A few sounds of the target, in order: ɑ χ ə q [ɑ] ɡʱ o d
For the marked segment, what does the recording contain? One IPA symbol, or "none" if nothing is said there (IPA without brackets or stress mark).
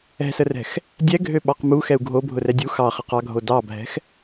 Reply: ɑ